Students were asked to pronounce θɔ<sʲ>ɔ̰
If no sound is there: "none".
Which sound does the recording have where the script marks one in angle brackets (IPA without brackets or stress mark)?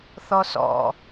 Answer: s